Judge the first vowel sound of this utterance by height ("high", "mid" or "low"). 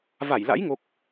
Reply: low